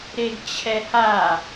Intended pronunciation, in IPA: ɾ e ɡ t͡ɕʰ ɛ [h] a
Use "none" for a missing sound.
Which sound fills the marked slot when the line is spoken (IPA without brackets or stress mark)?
h